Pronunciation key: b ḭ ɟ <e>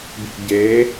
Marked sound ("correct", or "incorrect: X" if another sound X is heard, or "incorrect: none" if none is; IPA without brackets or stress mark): correct